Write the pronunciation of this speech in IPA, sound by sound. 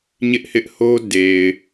ɲɪ˦ʔhɪ˦ʔho˦ de˨ɪ̯

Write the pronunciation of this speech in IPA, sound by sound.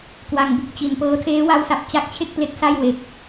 kwa˨˩ŋbu˥˩k̚t͡ɕi˩˦npɤː˦˥ tʰeː˦˥wa˦˥wsa˨˩p̚ t͡ɕa˦˥k̚t͡ɕʰe˥˩k̚ple˦˥k̚ sa˥˩j we˦˥k̚

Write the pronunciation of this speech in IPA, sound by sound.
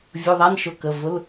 vʲu˩˧˩ðˤæ˧˥˧nʃʊ˩˧˩ kə˩˧˩ vʊ˧˥˧l

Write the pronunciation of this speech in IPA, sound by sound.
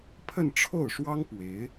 pʰə˥˧n ʈ͡ʂʰo˥˩ʊ̯ʂwɑ˥ŋ pwe˧˥ɪ̯

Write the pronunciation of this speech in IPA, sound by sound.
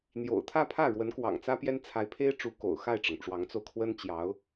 n̪jo̰˨˩ʊ̯t̪ʰä˥˧pʰä˥˩ ɻwə˧˥nkwɑ̰˨˩ŋt͡sä˥ pjɛ˥n t͡sʰa˧˥ɪ̯pʰe˥ɪ̯ ʈ͡ʂu˧˥ko̰˨˩ʊ̯xa˥˩ɪ̯ʈ͡ʂɤ˩ŋ ʈ͡ʂwɑ˧˥ŋt͡so˧ʊ̯ kʰwə˥nt͡ɕjɑ˧˥ʊ̯

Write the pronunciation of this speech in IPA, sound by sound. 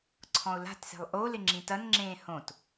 ǀʰɔ̃ʊ̯la̤tse̤lˠ ʔo lɪŋ͡ǁĩtɐnŋ͡ǁẽː hõt

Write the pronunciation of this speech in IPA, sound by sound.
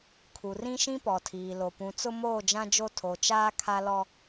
kʰu˨rĩ˦ʃĩ˦ pɔ˨tʰiː˨lo˨ pũ˨t͡sʊ˦moː˦˨ d͡ʒã˦d͡ʒo˦ tʰo˨t͡ʃaː˦ kʰa˦lɔ˦

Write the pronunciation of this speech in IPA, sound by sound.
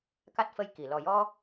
ka˦˥t̚fə˧jki˨˩˨ lɔ˨˩jɔ˧

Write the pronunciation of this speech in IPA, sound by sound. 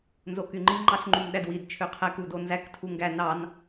nzokyŋ͡ǃi ŋ͡ǃɑɬŋ͡ǃymɗædwid t͡ʃʰøqʰæk udonzæk tʰuŋɡæ nɑn

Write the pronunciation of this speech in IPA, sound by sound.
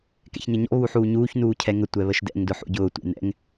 kɛ̰çɲʌɲɔ̰ βuħuːɲuːç nuːcʰɛŋə tʷɛβəʃdɛ̰ŋ dʊħṵɟʊː tʷɛ̰nɛ̰ŋ

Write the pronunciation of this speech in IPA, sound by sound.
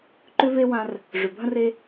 ǃʏ˥ve˥ wã˧r | ʐʏ˩bʱə̃˥r e˧

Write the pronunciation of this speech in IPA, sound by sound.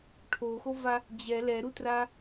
ʈʰoxova | d͡ʑɛ lɛɾutra

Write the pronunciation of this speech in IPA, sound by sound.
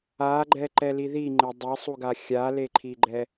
aɡ͡ǃɛ ǃɛliðiŋ͡ǃe dˤesˤuɡa xʲaleǃʰiɡ͡ǃɛ

